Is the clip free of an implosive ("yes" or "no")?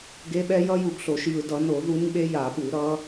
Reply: no